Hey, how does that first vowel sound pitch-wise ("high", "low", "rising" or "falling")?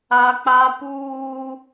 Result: high